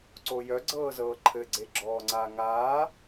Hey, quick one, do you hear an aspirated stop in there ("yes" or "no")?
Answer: yes